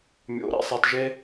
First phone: mʲ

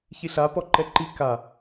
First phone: ç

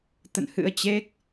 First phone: t̪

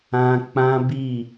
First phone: ã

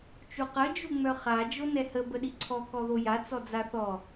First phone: t͡ʃ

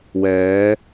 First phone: w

